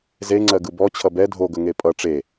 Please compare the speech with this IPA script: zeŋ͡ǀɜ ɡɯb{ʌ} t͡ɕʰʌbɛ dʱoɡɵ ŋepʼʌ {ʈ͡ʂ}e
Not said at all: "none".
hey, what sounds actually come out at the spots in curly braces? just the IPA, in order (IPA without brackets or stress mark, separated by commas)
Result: ɔ, ʈ͡ʂ